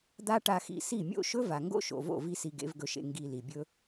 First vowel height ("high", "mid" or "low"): low